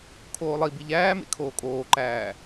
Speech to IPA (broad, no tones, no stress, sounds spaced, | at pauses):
kʰ oː lˠ i b i ʎ æː m ḛ kʰ oː kʼ oː ǃ æː